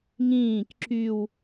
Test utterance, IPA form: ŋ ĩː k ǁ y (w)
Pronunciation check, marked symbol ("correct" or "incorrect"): correct